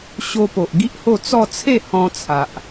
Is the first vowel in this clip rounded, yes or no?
yes